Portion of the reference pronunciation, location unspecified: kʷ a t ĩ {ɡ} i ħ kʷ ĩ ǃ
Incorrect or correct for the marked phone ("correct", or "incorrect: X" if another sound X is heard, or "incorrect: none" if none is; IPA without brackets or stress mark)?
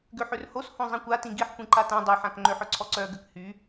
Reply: correct